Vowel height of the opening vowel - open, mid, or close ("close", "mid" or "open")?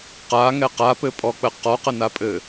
open